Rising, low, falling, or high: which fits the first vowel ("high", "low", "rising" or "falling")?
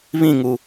falling